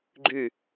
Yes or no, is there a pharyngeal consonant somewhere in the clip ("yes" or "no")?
no